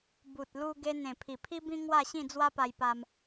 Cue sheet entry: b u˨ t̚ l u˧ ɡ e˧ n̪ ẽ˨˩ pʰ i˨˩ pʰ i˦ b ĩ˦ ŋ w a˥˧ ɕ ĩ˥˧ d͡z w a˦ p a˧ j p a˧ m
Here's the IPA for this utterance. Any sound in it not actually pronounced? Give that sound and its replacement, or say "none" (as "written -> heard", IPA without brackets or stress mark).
none